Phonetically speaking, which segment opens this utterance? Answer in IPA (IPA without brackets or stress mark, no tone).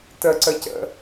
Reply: t